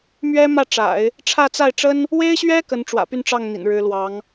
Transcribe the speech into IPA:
m ɥ ɛ˥ m ä˥˩ ʈ͡ʂ a̰˨˩˦ ɪ̯ | ʈ͡ʂʰ ä˥˧ t͡s a˥˩ ɪ̯ ʈ͡ʂ ə˥ n | w e˥ ɪ̯ ɕ ɥ ɛ˥ k ə˧˥ n ʈ͡ʂ w ä̰˨˩ p y˥˧ n ʈ͡ʂ ɑ˥˩ ŋ n̪ ḭ˨˩ n ɻ ɻ̩˧˥ l w ɑ˧˥ ŋ

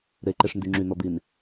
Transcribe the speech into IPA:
ɾ e ǃ e ʂ n d y ŋ͡ǁ y n̪ ɔ d̪ i n

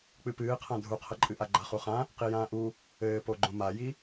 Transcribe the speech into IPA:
k͡p ɨ p ɨː qʰ ã dʱ u qʰ ɐ ǃʼ ɨ ʔ a ɡ͡ǃ a χ u χ ã | q i j ãː ʔ u | ɘː p o ɡ͡ǃ õ m a j i

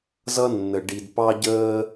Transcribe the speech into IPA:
z ʌ˦ nː ə˨ ɖ i˨ d p ɑ˦ ɟ əː˦

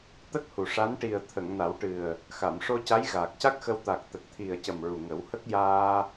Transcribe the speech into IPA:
t̪ ə˦˥ k̚ h u˨˩ ʂ a˧˥ n ʈ i˨˩ ə̯ t̪ʰ ə˨˩˨ ŋ n a˨˩˦ w ʈ ɨ˨˩ ə̯ | x a˨˩˨ m ʂ o˧ c a˧˥ j ɣ aː˨˩ k̚ c a˦˥ k̚ x ə˧ w t̪ a˨˩ k̚ t̪ ə˨˩ k̚ t̪ʰ i˨˩ ə̯ c ə˨˩ m ɹ u˨˩ ŋ ə˨˩˦ w h ə˦˥ k̚ j aː˧

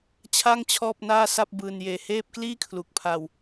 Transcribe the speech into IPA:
t͡ɕʰ a˥˩ ŋ t͡ɕʰ ɔː˥˩ p̚ n aː˥˩ s a˥˩ p̚ b ɯː˧ n j eː˧ h eː˥˩ p̚ k l iː˥˩ kʰ l u˨˩ k̚ pʰ a˧ w

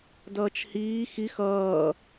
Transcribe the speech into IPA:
d ʌː t͡ʃ h iː x i x ʌː

